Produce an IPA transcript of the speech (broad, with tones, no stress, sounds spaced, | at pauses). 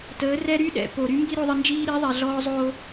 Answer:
t əː˨˦ r ɛ˦ ɾ y˦ ɗ ɛ̰˨ p o˨ ɾ y˦ m b i˦ ɾ o˦ ðˤ ə˦ n d͡ʒ iː˦ ɾ i˨˦ ðˤ ɛ˨ ɮ ɔː˦ zˤ oː˦